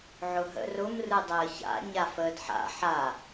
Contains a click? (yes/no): no